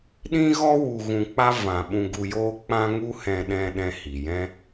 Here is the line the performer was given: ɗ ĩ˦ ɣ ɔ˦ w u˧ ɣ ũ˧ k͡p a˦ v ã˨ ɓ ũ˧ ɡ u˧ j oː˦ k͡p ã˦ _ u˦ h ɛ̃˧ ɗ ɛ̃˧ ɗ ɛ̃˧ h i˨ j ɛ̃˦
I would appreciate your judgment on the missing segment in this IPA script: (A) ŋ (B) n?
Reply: A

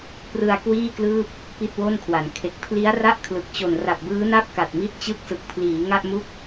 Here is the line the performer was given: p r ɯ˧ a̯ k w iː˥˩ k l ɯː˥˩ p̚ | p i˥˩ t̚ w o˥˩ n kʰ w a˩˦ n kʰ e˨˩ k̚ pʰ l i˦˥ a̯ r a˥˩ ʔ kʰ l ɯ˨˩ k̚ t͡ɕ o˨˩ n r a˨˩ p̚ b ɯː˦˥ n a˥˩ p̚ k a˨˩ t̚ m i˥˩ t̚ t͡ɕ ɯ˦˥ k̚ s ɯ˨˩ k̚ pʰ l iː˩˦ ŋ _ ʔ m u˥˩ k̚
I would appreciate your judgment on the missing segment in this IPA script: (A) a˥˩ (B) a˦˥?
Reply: A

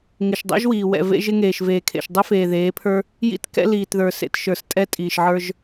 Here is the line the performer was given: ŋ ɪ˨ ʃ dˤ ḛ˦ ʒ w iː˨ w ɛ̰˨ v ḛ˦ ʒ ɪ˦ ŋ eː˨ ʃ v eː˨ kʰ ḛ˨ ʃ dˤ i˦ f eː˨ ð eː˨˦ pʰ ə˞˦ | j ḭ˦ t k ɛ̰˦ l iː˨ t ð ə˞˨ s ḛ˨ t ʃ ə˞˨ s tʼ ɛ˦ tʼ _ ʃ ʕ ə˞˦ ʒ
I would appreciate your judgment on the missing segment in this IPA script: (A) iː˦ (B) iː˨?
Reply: B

